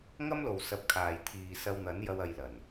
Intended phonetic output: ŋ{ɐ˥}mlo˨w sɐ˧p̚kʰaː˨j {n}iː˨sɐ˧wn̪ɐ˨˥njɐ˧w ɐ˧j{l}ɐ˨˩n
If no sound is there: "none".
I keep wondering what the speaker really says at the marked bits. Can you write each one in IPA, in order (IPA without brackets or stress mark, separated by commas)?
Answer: ɐ˥, t̪ʰ, l